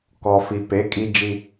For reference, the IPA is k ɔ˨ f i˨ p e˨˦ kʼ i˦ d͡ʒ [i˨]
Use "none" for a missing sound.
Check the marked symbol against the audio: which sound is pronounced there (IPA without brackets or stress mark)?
i˦